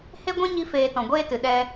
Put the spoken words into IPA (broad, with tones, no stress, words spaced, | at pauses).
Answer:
he˦ɡʷɛ̃˦ ɲi˦feː˧ tɔ̃˨ɡʷeː˦tɨ˨ ɗɛ˦